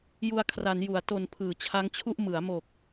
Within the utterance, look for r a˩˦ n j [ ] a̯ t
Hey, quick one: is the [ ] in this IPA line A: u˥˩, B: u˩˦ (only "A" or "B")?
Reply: B